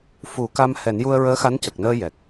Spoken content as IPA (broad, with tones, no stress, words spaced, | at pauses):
fu˨˩˦ka˧m hɛ˨˩˦nju˧ə̯ɹəː˧˥xa˧˥n cə˨˩k̚nəː˧ jɛ˨˩k̚